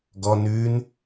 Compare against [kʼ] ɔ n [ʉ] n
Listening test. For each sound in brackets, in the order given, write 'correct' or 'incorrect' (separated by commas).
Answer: incorrect, correct